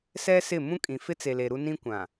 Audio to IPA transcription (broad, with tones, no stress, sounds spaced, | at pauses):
s ɛ˦ s ɪ˦˨ m ũ˦ kʼ ĩ˨ f ɪ˦ t͡s e˨ l e˨ ɾ u˦ n ĩ˦ kʷ ã˨